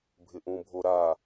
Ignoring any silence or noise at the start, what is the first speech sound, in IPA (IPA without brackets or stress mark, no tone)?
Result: bʱ